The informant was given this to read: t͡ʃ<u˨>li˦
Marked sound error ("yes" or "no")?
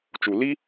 no